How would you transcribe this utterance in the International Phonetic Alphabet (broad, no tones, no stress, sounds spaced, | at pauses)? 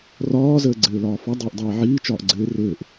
r ɒː z əː ɡ͡ǀ ɘː l ɒː f ɒ dˤ eː ʔ dˤ eː ʕ iː t͡ʃ ɒː ʔ ɡ͡ǀ ɘː r ɘː ʔ